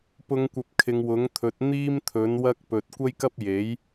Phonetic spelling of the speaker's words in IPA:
p ʊ˨˧ ŋ kʷ ɐ˨ p̚ kʰ ɪ˨˧ ŋ w ʊ˨˥ ŋ t̪ʰ ɵ˨˥ t̚ n̪ iː˥ m t̪ʰ ɵ˨˥ n w ɐ˥ k̚ p ɵ˨ t̚ kʷ ɐ˥ j k ɐ˥ p̚ j e˨˥ j

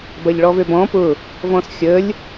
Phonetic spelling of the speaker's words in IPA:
b ɐ ʎ ɭ ɔ v ø b ɔ̃ p ʊ | v ɔ̃ s xʲ ə lʲ

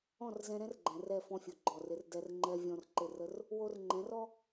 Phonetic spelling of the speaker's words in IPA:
ɔ̃˦˨ r z ɛ̃˧ ɾ ɛ̃˦ r ɡ͡ǃ ɛ̃˨ r ɛ˦˨ f ɔ̃˧ fʲ o˧ ɡ͡ǃ ɔ˦˨ r ɪ˦ r d ɛ˧ r ŋ͡ǃ ɛ˧ vʲ ɔ̃˧ r ǃ ɪ˦˨ r ə˦ r | w o˧ r ŋ͡ǃ ɛ̃˨˦ r ɔ˦

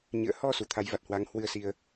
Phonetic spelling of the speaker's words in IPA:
ɲ ɨ̰˧˨ ə̯ h ɔ˧ s u˨˩ t̪ʰ a˨˦ j v a˨˩ t̚ h w a˨˦ ŋ h w ɨ˧ ə̯ s i˧ ə̯

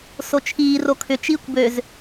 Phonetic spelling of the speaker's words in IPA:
s o t͡ʃʰ iː r o kʰ ʏ t͡ʃ iː kʷ b ø z

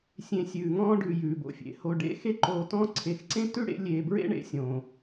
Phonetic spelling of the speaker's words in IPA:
sʲ ẽ˨ sʲ ʉː˩ ŋ ɔ̃ː˦ ɖ ʉ˨ j ʉː˩ b o̰˨ fʲ ḛ˩ h o˨ ɖ ḛ˥ x e˦ ǃ oː˨ t ɔ̃˦ ǀʰ e˨ x ǀ ẽ˥ t ʉ˥ ɽ ḛ˦ lʲ eː˨ b ɹ ḛ˥ ɳ ḛ˦ sʲ õː˩

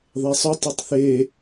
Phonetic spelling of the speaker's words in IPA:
ðˤ e sˤ ɵ tˤ i tˤ θ e

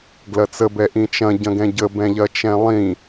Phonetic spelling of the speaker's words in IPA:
ɡ l ɐ t͡s ə b ɛ ʔ ĩ t͡ʃ ɐ̃ ɟ ɐ̃ ɡ ɛ̃ ɟ ə b ɛ̃ ʎ ɐ t͡ʃ ɛ̃ lˠ ĩ

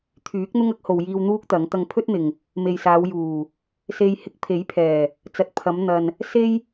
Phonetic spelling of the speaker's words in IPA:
t̪ʰ yː˨˥ k̚ n̪ ʊ˥ ŋ ɐ˥ k̚ h o˨ w j iː˧ w n̪ uː˥ k̚ t̪ ɐ˨˥ ŋ t̪ ɐ˧ ŋ pʰ ɵ˥ t̚ n̪ ɪ˨ ŋ | m e˨ j s aː˨˧ w j uː˨˩ | s e˧ j h ɪ˧ k̚ pʰ e˨˥ j pʰ ɛː˨˩ | t͡s ɐ˨ t̚ pʰ ɐ˨˧ m n̪ ɐ˨ n | s e˥ j

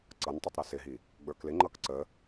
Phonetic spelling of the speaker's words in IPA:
ǀ ʌ n tˤ ʊ tˤ ɾ ə s ɪ ɦ i | ɡ͡b ə˞ k l ɪ ŋ͡ǃ ʌ k ǀ ə

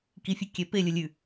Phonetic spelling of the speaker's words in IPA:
k i fʲ ʊ kʲ ɛ p e lʲ ʊ lʲ ʉ

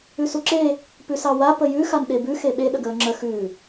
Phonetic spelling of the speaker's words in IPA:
ʉ s u ǁ e | p ʉ s ɑ w a p ə j ʉ x a n ɗ e b ʉ x e ɓ e ɗ ə ɡ əː ŋ͡ǁ ə x ʉ

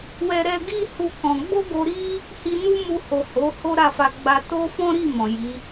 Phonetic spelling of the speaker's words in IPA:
w ɛ˦ ɾ ɛ˧ ɡ i˦ h u˦ k ɔ̃˧ ɡ͡b o˦ ɡ o˧ ɾ i˦ | h i˧ n u˦ m u˧ h o˨ h o˨˦ h o˦ ɾ a˦˨ f a˧ ɡ͡b a˧ t o˦ f ɔ̃˦ ɾ i˦˨ m ɔ̃˨ j i˨˦

